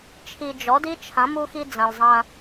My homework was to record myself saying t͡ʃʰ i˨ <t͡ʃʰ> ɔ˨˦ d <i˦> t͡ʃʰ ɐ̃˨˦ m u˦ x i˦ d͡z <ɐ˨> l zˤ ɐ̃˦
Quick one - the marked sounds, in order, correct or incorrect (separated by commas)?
incorrect, correct, incorrect